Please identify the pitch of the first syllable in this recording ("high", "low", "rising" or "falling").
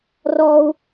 high